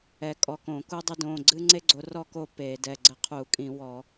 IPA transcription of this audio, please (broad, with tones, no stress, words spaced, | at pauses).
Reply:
ɛ˨˦kʼɔ˩˧˩kõ˧˩˧ ku˦dˤɘ˦dõ˩˧˩ ɡ͡ǀɨ˦ŋ͡ǀe˦ɡ͡ǀo˨˦rɔ˦˨ ko˦˨ pe˧˩˧dɛ˩˧˩ ɡ͡ǀɘ˦qʰu˧˩˧kʼĩ˧˩˧wɔ˧˩˧